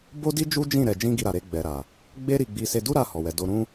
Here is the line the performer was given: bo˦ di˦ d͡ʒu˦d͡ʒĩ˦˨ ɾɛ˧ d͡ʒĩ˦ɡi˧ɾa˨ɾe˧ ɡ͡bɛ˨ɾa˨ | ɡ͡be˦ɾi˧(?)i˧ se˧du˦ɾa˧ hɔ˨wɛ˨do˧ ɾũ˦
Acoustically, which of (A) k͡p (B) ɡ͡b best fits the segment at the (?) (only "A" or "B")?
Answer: B